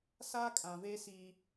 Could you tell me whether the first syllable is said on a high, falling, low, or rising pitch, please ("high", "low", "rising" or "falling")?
high